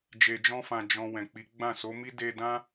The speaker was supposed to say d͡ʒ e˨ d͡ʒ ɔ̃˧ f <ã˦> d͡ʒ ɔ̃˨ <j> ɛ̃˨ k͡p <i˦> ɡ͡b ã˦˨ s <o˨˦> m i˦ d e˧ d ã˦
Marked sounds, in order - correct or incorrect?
incorrect: ã˨, incorrect: w, incorrect: i˨˦, correct

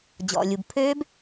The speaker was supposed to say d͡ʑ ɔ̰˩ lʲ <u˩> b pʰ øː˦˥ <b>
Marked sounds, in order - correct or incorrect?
correct, correct

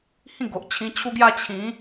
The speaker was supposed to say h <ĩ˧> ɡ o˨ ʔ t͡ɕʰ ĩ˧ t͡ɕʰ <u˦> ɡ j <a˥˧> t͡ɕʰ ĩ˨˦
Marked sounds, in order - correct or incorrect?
incorrect: ĩ˥˧, correct, correct

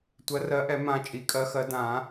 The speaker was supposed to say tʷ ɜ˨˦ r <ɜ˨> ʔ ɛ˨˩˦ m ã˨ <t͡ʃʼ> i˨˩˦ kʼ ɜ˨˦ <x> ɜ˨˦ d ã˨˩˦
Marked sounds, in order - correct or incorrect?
incorrect: ɜ˨˦, correct, correct

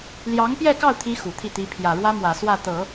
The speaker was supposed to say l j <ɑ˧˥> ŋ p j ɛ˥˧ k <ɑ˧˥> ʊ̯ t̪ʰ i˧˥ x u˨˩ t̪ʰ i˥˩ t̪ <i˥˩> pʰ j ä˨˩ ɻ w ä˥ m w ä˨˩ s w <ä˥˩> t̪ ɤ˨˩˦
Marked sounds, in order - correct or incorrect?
correct, incorrect: ɑ˥˩, incorrect: i˧˥, correct

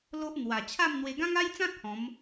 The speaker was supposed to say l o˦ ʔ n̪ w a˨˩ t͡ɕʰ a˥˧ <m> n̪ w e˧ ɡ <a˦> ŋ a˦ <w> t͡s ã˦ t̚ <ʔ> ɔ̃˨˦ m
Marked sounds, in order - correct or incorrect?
correct, incorrect: ã˦, incorrect: j, incorrect: h

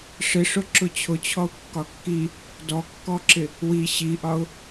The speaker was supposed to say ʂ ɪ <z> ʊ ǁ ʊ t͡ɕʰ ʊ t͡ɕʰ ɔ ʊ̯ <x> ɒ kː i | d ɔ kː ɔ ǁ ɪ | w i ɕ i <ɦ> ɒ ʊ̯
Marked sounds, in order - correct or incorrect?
incorrect: ʂ, incorrect: kː, incorrect: ʔ

